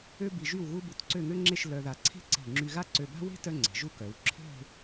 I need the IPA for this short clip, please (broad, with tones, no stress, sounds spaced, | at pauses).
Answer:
ø˥ b i˧ ʒ y˥˧ w ɣ u˥ b u˧ t ǀ ø˥˧ ŋ ø˥ ŋ͡ǁ e˥˧ ʃ l œ˧ ð a˧ ǀʰ e̤˥ ǀ e̤˧˩ ŋ͡ǁ y˧ ɣ a˥ ǀ ø˧ b a̤˥ w e̤˥ t œ˥ ŋ͡ǀ e̤˩˧ ʒ u˥˧ k œ˩˧ w ǁʰ e̤˥˧